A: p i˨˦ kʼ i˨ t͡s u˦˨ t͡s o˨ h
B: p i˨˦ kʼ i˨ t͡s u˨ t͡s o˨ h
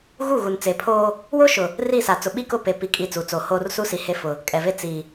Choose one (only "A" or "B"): B